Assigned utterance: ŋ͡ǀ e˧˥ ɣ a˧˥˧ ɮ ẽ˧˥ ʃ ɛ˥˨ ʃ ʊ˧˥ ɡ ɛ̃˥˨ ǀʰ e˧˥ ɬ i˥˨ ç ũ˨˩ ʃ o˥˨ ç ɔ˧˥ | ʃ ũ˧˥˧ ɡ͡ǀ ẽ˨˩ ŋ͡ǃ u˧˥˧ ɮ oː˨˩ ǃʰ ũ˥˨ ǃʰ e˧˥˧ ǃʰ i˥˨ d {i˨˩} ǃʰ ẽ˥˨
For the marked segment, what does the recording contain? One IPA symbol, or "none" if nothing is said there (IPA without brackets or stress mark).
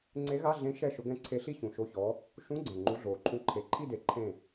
e˨˩